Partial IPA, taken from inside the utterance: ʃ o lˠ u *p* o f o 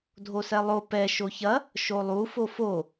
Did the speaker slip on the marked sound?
yes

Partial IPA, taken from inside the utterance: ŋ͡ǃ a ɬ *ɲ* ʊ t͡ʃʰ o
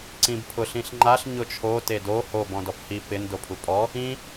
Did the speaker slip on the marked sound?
no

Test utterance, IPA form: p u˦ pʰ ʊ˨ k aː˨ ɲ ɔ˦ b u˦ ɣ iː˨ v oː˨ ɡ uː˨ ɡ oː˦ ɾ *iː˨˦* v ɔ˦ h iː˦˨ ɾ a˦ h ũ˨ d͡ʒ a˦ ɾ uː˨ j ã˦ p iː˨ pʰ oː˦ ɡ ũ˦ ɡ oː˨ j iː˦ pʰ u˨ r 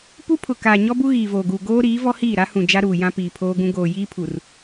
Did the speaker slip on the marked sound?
no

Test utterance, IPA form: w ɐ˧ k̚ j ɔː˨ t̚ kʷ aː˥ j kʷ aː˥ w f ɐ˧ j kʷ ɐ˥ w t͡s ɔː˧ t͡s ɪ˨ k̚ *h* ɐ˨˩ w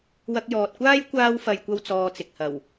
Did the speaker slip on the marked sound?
no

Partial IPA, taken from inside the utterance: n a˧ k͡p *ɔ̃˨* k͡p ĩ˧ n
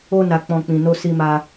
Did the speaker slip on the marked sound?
yes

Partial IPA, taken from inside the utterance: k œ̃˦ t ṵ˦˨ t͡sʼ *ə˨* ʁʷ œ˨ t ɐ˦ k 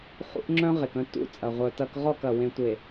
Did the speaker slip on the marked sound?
yes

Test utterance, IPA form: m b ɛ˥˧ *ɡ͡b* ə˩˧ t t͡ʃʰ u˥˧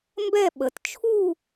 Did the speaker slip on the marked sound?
yes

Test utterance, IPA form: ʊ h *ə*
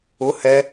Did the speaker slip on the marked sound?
yes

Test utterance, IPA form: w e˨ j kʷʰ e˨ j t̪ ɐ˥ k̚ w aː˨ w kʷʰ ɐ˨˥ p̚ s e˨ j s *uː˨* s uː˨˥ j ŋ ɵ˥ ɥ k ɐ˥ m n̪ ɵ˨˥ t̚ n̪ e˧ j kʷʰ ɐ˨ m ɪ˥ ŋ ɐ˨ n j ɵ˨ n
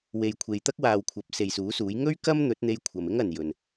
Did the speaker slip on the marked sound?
yes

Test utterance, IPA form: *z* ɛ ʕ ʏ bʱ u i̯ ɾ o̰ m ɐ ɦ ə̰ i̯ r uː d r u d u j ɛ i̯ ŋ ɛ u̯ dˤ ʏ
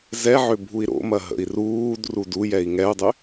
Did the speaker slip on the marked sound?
no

